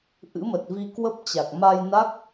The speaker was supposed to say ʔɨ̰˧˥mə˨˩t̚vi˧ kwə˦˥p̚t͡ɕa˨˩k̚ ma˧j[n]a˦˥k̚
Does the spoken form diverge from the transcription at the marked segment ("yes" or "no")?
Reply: no